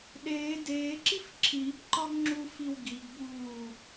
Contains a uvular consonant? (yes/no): no